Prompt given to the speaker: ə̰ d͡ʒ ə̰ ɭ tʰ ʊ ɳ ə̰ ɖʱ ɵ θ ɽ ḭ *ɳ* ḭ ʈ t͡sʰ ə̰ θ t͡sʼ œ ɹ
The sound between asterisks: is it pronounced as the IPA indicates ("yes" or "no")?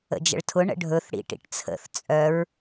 no